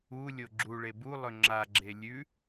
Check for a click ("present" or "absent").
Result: present